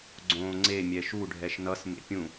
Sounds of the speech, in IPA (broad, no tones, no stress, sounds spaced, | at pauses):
ɡ͡ǀ õː ŋ͡ǀ e mʲ ɛ ʃ u ɖʱ ɛ ʃ n ʌ s m ḛ pʲ ũ